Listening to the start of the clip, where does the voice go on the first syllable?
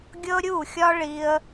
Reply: high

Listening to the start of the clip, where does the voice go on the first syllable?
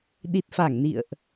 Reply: low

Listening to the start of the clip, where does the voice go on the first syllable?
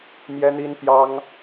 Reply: high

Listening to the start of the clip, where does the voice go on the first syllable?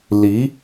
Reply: rising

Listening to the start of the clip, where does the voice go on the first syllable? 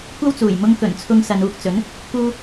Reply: high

